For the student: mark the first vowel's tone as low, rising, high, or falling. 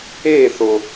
falling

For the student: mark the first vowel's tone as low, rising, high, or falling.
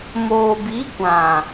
low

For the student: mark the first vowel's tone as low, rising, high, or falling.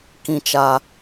high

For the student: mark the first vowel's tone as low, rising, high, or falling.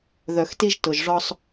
low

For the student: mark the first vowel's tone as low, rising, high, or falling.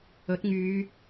rising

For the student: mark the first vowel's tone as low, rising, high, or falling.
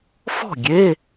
falling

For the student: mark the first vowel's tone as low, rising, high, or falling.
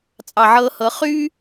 low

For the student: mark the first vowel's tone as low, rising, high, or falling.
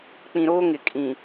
low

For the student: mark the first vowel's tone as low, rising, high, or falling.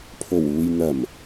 low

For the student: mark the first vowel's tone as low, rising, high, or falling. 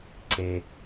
low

